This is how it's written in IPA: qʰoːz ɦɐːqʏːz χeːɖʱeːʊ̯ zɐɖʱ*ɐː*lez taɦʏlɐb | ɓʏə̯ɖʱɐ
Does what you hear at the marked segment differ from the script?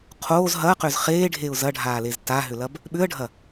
yes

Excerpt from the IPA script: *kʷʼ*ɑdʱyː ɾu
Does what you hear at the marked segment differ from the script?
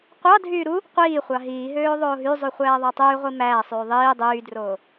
yes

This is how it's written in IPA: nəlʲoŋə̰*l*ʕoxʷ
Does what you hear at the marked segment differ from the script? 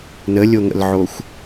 no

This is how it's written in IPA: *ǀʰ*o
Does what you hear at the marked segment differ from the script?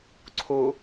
no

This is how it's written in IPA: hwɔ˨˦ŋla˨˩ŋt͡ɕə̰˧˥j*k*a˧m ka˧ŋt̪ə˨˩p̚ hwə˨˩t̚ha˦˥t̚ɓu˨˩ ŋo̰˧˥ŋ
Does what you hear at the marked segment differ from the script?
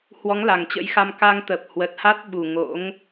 yes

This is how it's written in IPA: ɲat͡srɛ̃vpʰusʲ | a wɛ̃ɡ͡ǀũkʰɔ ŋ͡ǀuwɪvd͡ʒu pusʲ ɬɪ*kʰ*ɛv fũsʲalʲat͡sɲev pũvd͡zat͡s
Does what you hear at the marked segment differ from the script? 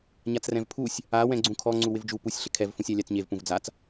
no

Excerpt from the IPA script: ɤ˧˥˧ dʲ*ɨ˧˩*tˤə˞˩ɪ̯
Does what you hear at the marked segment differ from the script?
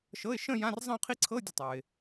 yes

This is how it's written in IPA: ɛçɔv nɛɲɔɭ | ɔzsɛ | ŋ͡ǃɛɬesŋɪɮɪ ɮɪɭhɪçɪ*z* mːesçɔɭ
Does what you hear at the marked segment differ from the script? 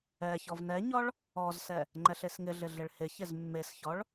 no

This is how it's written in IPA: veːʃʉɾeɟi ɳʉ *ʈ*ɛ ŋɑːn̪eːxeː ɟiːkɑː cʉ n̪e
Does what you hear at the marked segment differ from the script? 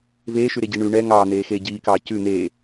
yes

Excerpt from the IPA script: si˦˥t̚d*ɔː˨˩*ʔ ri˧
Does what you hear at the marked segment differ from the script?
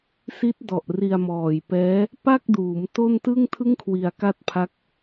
yes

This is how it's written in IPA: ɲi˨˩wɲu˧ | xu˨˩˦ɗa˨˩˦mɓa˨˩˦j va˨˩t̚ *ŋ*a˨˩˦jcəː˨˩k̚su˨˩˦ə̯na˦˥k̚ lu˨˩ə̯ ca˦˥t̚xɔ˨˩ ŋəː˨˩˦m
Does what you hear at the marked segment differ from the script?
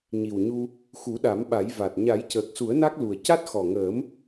yes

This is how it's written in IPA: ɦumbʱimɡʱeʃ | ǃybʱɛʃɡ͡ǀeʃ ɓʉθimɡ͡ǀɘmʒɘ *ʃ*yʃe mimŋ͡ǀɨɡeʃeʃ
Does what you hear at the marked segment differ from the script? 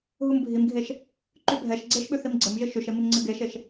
no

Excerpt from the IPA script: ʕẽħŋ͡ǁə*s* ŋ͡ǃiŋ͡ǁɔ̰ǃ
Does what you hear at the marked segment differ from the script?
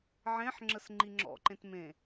no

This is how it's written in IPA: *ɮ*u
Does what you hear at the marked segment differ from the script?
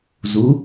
yes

